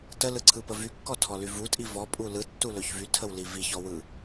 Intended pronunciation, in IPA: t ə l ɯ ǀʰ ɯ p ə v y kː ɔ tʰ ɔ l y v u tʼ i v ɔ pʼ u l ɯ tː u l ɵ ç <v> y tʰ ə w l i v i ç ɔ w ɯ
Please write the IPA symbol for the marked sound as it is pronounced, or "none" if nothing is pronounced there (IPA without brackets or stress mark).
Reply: v